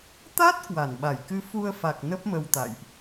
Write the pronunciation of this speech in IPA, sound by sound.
t̪ a˦˥ t̚ k w a˧˩ n ɓ a˧˩ j k ɨ˨˦ f u˧ ə̯ f a˨˩ k̚ n ə˦˥ p̚ m ə˧ w t̪ a̰˧˨ j ʔ

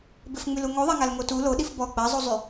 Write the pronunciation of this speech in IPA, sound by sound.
b ɪ f ŋ͡m y l u ŋ o ðˤ a ŋ a l ŋ o t u l o ɗ i f b ɔ ɡ͡b a zˤ u zˤ y

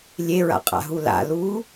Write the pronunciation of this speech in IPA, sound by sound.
lʲ e ɹ a̰ qʼ a̰ ɦ u l a̰ l u

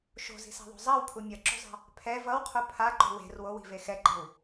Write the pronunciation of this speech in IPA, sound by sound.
ʃ o̤ z i̤ s a̤ ðˤ o̤ zˤ a w pʰ u mʲ ʌ ǁ o̤ zˤ a̤ | pʰ ɛ v ʌ w qʰ o pʰ a ǃ o̤ w e̤ r w o w i̤ v e x ɛ ǃ e̤ w

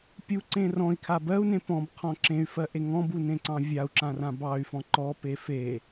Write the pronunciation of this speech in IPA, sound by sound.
pʲ u ǀ ẽ r ɔ̃ i̯ kʰ a b ɜ u̯ n ẽ p ɔ̃ b qʰ ɔ̃ ǁ ẽ y̯ f ɜ ʔ e ŋ ɔ̃ b u n ẽ ǀ ɑ̃ vʲ a u̯ ǁ ã r ã b ɑ y̯ f ɔ̃ ǃ ɔ p e f e

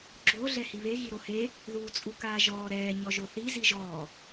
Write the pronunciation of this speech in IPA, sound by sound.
ɡ͡ǁ o ɮ ɛ h i β e ɣ i ɾ o h e | ð uː t͡sʼ u k aː ʒ ɔː ɾ ɛː ɲ ɔ ʒ o θ i z i ʒ ɔː

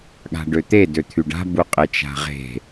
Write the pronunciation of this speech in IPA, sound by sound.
ɠ a̤ ɖ ø t̪ e d ø t̪ʰ y ɖ a̤ b u qʼ e t͡ʃ a̤ ʁ e̤

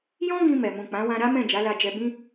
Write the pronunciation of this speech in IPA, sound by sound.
j ɔ̃˦ ɡ ĩ˧ m ɛ˨ m ũ˨ k͡p ã˨˦ w ã˧ ɾ a˦ m ɛ̃˦˨ d͡ʒ a˨˦ l a˧ d͡ʒ ɛ˧ b ĩ˧

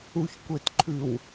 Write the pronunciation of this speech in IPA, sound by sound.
u ç kʷ e t ǃʰ ʉ w

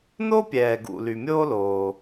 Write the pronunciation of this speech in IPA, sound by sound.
n o˥ pʲ ɛː˩ ɡ ṵ˩ l y˩ mʲ oː˥ l oː˩

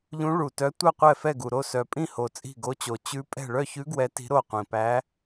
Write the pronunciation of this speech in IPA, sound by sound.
ʎ ũ˧˥ ɭ u˨˩ t œ˧˥ tʷ œ˥˩ qʷ ɛ˥˩ f ɛ˥˩ ɡ u˨˩ ɾ o˥˩ s œ˨˩ pʼ ĩ˥˩ h o˨˩ t͡sʼ i̤˥˩ ɡ o˧˥ t͡ɕ o˨˩ t͡ɕ ʉ˧˥ pʼ ɛ̤˥˩ ɭ œ˥˩ ç ʉ˧˥ ɡ w ɛ˧˥ t i̤˧˥ ɾ o˥˩ qʷ ĩ˨˩ p æ˧˥

